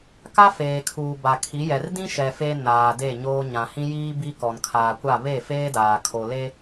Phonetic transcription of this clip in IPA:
k a˦ f eː˨ kʰ uː˨ b a˨ kʰ i˨˦ j ɛ˨ r d ĩ˦ ʃ ɛ˨ f e˦ n aː˨ d e˦˨ ɲ oː˦ ɲ ã˨ h ĩ˦ j iː˦ b i˦ k ɔ˨ n kʰ aː˨ kʷ a˦˨ β e˦˨ f eː˦ d aː˨ kʰ o˨ l e˦

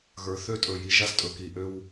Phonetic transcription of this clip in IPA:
ɣ ə˞˨ θ ø˦ tʼ ɵ˨ j i˨ ʒ a˦ s tʼ ɵ˨ k i˨ ʔ ø˦ w

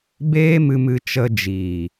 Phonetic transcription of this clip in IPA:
b eː˦ m ɨ˧ m ɨ˧ t͡ʃ ə˧ d͡ʒ iː˨

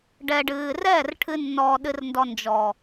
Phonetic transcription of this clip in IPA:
ɖ ɛ˧ ɖ ɨː˧ r ɛː˦˨ r ʈʰ ɨ˧ nː ɔː˧ ɗ ɨ˧ r n d ɔ˧ n d͡ʒ ɔ˨

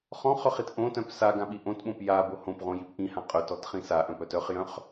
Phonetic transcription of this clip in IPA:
χ ɔ̃ χ œ χ i t ʔ õ t œ̃ p s a ɡ ã ɓ i ʔ õ t ɓ õ p j a b o h õ p ʁ õ j i p ʔ ĩ h ã qʼ œ t ɔ t χ ĩ s a ʔ œ̃ p œ t œ χ j œ̃ χ

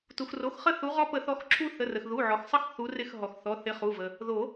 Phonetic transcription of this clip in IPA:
t u˩ x r o˩˧˩ x χ ə˦˨ θ u˨˦ ʁ ɔ˦ p ə˨˩˦ θ ɔ˨˦ x ǁʰ u˦ θ ə˩˧˩ r ə˩ x ð u˩˧˩ ʕ ɔ˩ x sˤ ə˦˨ x θ u˨˦ r ɪ˦˨ x ɦ ɔ˩ x θ ɔ˩˧˩ θ ɪ˨˦ χ u˩˧˩ v ə˩ | ð o˨˩˦

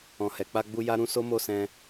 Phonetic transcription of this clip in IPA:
ɔ̃˨ h ɛ˨ k͡p a˧ ɡ͡b u˧ j a˦ ɾ ũ˦ s o˦ m o˦˨ s ɛ̃˧

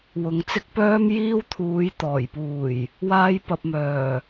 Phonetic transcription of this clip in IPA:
w ʊ˨ ŋ t͡s ɪ˥ k̚ p œː˥ m j iː˥ w t̪ʰ uː˨˥ j t̪ ɔː˨˩ j p uː˨˩ j | w aː˧ j p ɐ˨ p̚ m œː˨˩

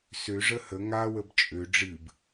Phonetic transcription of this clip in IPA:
s ø ʐ ə h ə ŋ a w ə b t͡ʃʼ ø ɖ͡ʐ ɨ b

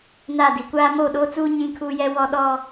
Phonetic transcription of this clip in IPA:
n a˦˨ d i˨ kʷ aː˦ m oː˦˨ ɗ oː˦ t͡s uː˦ ɲ ĩ˦ kʰ uː˦ j ɛ˦ w ɔ˦ ɗ ɔ˦

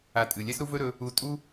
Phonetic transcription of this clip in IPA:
a˧ tʼ ɨ˨ lʲ ɛ˦ s ɾ u˦ v ɵ˦ ɾ ɵ˧ | u˧ tʼ u˦

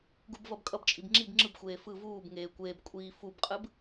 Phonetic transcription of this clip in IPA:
ɡ u b v ʌ b kʼ ʌ b t͡ʃʼ i b ŋ͡ǁ i b ŋ͡ǁ ɯ b xʷ eː f ɯ v uː b ŋ eː kʷ eː b kʷʼ iː f u b qʼ ɯ b

